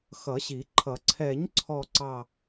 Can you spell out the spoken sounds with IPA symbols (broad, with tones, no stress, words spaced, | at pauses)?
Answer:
xʌ˨˩˦ɕi˨˩˦ǃʰʌ˨˩˦ ǀʰɛ˨˩˦ɲǀʰɔ˨˩ǀɑ˨˩